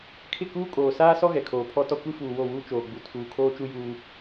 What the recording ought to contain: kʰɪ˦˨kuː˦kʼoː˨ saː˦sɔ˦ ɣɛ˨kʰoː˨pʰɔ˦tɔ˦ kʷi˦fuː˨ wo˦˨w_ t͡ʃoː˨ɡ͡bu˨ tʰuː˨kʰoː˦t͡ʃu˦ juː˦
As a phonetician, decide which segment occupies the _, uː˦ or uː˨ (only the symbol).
uː˦